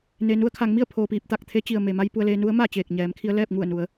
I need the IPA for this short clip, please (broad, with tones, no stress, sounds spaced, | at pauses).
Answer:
n e˩ n u˧ ə̯ kʰ a˩˧ ŋ m i˥˨ ə̯ pʰ oː˩ p iː˧˩ p̚ t̪ a˧˩ k̚ t̪ʰ e˧˥ t͡ɕ i˩ ə̯ m e˩ m a˧ j p u˧ ə̯ l eː˧ n u˧˥ ə̯ m a˥˨ t͡ɕ eː˧˩ k̚ ɲ ɛː˩˧ m kʰ i˧ ə̯ l ɛː˥˨ p̚ ŋ u˧˩ ə̯ n u˩˧ ə̯